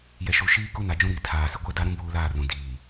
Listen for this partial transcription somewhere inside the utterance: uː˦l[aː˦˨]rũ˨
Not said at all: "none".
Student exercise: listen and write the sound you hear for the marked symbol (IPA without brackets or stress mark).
aː˦˨